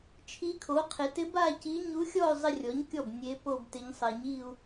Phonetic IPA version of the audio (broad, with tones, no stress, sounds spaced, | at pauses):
t͡ʃʰ i˧˥ kʰ o˩˥ qʰ e˩˥ t ɪ˧˥ b a˥˧ c i˧˥ ɲ u˧˥ xʲ ɔ˥˧ y̯ zˤ ɪ˥˧ rʲ ɔ˩˥ ɲ kʲ ɔ˥˩ b nʲ e˧˥ p o˥˧ b t ɪ˧˥ ɲ sˤ ɛ˨ ɲ i˥˧ u̯